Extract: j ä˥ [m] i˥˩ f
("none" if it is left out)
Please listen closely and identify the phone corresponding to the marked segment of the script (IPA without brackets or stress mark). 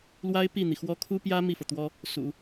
m